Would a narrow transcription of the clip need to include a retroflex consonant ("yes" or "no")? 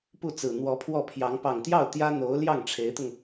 yes